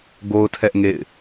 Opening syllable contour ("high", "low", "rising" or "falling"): high